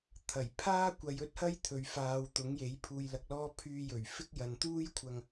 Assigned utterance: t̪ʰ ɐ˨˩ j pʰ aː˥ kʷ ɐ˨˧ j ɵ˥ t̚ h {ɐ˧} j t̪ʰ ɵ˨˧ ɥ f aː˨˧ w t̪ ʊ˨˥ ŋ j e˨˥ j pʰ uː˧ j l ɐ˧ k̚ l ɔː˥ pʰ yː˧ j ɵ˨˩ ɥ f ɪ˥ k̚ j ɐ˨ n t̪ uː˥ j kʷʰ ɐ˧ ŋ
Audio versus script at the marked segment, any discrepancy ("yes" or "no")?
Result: yes